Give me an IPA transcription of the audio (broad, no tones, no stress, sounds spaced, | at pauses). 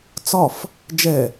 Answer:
t͡s ɒ f | d͡ʒ ɛ